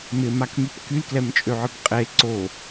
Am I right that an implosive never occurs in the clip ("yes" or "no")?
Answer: yes